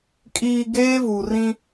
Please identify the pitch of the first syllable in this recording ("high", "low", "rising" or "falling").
low